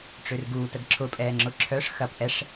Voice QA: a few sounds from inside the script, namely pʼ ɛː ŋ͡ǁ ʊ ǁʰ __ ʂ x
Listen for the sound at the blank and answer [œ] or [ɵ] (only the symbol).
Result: œ